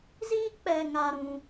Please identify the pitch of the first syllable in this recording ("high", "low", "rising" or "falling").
high